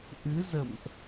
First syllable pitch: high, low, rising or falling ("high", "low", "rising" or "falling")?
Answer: rising